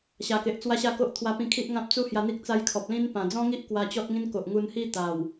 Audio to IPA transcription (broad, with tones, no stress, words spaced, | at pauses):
ɕa˨˩ke˨ʔ t͡swa˦ɕa˥˧ko˦ʔ t̪ʰwa˧pĩ˧kʰi˦ʔŋã˦p̚ t͡su˦hja˧n̪i˦k̚ t͡sa˧j kʰɔ˨p̚lĩ˦n pã˨˩d͡zɔ̃˦ŋi˦ʔ kwa˧t͡ɕɔ˦t̚ŋĩ˦n ko˨ʔŋu˧nhi˥˧ t̪a˨˩w